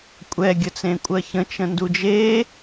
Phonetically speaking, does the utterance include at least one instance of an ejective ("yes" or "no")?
yes